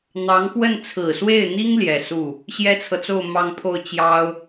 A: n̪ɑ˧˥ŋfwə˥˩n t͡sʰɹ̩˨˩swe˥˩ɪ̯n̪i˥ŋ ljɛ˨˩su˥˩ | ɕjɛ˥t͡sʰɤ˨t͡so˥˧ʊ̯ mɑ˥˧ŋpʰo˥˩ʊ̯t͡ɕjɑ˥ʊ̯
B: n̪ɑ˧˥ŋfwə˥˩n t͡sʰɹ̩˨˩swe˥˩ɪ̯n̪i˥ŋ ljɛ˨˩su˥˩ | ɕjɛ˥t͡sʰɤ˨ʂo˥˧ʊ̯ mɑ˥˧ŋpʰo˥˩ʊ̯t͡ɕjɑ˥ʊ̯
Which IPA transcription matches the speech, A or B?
A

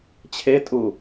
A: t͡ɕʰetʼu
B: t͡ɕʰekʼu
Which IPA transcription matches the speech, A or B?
A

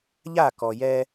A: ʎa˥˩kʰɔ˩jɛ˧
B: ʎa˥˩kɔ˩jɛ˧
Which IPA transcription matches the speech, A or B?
B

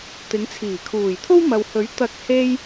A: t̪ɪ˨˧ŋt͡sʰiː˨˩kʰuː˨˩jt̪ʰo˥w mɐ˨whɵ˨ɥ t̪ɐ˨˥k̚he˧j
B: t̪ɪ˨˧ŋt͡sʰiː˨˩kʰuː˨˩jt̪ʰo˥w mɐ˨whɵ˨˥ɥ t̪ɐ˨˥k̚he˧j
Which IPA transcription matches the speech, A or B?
B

